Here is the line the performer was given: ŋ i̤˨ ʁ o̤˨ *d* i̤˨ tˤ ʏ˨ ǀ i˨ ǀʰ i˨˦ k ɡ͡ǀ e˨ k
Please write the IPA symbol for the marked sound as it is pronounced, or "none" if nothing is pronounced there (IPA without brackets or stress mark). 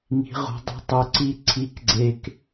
dˤ